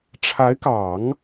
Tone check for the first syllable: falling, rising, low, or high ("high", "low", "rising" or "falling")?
rising